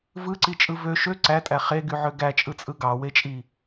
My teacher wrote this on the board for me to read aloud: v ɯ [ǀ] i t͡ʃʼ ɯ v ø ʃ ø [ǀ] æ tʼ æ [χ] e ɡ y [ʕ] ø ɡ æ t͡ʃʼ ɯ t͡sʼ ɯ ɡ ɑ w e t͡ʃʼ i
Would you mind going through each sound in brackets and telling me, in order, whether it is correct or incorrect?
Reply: correct, correct, correct, correct

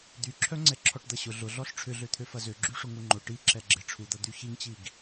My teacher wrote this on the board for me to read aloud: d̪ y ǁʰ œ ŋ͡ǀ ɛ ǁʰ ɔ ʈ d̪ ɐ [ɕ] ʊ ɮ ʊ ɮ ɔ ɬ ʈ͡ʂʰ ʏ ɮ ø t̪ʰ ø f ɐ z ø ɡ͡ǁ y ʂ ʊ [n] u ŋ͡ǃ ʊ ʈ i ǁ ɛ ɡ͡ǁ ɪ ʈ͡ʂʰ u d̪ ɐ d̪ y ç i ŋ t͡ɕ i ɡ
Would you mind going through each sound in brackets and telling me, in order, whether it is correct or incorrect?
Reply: correct, incorrect: ŋ

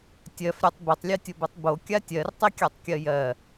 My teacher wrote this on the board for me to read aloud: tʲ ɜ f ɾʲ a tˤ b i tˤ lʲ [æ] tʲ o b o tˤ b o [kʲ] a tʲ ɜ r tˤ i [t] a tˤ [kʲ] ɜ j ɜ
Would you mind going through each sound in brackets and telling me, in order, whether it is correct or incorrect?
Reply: incorrect: ɜ, correct, incorrect: kʲ, correct

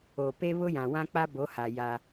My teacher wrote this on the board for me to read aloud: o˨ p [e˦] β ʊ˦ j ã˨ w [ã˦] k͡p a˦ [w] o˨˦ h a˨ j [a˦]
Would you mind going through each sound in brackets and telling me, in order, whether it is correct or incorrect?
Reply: correct, correct, incorrect: b, correct

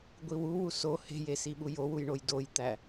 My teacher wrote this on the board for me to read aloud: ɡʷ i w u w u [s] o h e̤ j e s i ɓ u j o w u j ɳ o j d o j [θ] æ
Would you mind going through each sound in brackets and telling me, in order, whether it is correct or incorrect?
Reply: correct, incorrect: t̪

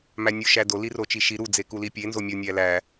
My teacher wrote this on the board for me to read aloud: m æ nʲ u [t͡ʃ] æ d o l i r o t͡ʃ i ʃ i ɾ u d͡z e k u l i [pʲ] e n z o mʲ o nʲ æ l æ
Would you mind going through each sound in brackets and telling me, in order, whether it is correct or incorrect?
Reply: incorrect: ʃ, correct

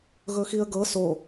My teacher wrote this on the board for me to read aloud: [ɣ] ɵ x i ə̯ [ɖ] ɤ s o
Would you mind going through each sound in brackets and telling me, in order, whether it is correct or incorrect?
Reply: correct, incorrect: ɡ

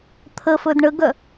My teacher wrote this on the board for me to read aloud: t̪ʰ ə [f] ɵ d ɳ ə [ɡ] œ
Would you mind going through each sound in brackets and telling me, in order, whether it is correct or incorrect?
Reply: correct, correct

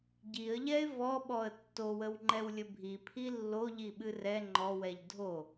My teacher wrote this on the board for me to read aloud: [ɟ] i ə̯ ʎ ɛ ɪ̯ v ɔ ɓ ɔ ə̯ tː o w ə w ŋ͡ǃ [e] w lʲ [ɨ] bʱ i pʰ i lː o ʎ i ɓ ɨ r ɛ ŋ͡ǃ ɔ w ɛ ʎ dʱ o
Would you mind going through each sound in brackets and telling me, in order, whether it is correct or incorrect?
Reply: correct, incorrect: ɛ, incorrect: ə

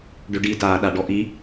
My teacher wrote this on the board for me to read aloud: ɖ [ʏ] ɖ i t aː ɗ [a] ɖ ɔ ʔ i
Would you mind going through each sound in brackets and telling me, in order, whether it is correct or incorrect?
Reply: correct, correct

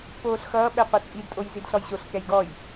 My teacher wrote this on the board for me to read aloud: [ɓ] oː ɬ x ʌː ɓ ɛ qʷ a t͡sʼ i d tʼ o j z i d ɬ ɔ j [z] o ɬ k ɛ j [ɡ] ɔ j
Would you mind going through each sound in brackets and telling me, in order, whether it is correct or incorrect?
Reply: incorrect: p, incorrect: ɕ, correct

